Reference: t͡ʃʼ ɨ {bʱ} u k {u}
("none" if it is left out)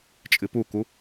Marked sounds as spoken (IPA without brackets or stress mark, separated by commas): p, u